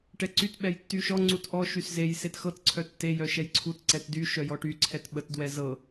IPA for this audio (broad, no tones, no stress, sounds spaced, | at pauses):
ʈ ɛ ǀ y t ɓ ɛ j tː y ʃ ɔ ŋ͡ǀ u t ʔ ɔ ʃ y s z e j s e t x ɤ t ǀʰ œ tː e j œ ʃ ɛ j ǀʰ u t ǀ ɛ t d y ʃ œ j ɔ ʈ y ǀʰ ɛ t ɓ ə t d w ɛ z ɤ